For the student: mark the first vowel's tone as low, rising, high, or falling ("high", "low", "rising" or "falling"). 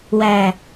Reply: low